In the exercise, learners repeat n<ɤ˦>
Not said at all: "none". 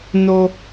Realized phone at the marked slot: o˦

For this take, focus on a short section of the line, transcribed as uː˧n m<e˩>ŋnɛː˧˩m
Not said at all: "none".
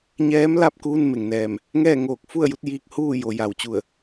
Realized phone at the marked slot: e˩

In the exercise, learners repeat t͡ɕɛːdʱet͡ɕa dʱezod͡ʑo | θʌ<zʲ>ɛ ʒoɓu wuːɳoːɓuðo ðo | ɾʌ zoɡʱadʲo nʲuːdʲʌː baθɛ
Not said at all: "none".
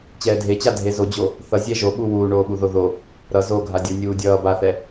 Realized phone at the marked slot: zʲ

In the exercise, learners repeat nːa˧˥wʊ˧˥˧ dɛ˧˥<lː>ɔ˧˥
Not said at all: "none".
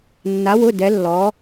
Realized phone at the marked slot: lː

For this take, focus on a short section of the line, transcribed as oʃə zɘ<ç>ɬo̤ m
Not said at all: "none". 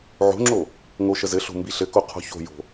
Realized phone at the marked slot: none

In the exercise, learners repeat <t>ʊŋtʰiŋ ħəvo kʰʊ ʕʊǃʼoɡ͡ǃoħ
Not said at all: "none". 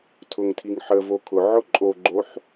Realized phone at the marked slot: tʰ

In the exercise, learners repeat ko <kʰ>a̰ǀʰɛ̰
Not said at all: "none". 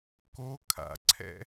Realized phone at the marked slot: kʰ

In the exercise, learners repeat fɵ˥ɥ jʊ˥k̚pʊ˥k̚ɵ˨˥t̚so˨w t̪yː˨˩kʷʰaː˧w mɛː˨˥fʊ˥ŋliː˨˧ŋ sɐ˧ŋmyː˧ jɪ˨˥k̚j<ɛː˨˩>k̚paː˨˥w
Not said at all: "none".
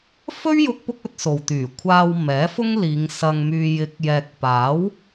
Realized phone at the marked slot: ɛː˨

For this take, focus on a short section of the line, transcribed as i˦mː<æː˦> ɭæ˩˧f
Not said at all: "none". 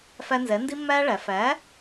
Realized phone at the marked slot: æː˦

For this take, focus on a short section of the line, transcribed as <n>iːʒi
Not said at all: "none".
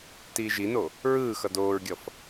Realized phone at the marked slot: t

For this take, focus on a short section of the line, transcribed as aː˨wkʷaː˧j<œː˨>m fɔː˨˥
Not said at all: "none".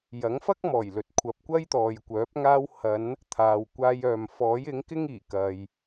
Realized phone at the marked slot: œː˨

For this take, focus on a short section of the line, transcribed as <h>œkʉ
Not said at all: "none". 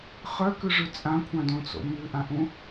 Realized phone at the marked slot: χ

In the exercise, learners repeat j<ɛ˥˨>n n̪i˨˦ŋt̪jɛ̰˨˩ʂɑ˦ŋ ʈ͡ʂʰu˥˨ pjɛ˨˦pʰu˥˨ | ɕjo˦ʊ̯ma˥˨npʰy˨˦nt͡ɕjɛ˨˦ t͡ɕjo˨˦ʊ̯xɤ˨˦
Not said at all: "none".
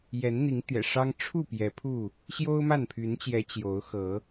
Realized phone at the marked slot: ɛ˨˦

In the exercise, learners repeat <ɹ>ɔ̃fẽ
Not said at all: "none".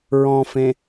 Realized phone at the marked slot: ɹ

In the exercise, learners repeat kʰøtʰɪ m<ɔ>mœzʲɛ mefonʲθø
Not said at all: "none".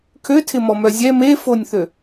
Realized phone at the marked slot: ɔ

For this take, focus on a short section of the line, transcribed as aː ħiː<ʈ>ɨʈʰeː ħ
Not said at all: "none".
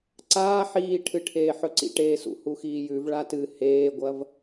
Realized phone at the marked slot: ʈʰ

